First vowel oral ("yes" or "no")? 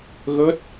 yes